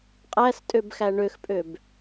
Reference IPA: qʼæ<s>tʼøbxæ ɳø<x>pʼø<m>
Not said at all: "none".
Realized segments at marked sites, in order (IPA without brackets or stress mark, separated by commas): s, x, b